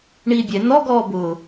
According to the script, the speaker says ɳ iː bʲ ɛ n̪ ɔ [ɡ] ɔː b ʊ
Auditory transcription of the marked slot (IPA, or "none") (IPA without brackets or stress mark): ɡ